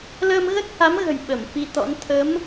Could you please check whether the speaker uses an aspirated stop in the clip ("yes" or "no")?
yes